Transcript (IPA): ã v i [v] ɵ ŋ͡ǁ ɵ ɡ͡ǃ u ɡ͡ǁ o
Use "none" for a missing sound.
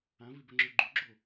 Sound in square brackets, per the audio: b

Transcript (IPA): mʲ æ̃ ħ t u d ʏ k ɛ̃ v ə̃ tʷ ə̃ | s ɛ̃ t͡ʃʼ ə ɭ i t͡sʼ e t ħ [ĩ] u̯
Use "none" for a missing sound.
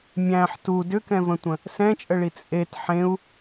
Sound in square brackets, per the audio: ẽ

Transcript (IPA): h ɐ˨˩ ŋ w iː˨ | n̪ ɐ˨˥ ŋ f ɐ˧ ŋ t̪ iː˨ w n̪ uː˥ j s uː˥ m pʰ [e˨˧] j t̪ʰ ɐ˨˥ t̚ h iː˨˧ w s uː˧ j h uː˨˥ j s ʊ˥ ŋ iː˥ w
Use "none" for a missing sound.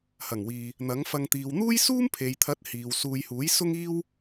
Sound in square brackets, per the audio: e˨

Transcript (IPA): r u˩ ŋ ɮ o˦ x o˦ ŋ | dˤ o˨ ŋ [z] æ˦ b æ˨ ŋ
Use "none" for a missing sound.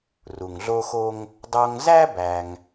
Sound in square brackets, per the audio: z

